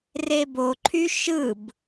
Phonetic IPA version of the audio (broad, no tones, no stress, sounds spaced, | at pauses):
r e b o ǃʰ y ʃ ɯ b